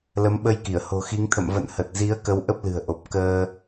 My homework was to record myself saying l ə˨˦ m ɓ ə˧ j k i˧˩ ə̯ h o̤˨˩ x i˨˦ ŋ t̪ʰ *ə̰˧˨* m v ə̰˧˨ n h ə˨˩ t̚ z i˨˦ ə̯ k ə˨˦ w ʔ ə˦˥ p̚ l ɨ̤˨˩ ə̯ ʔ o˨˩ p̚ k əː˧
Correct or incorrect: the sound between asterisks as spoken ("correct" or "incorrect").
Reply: correct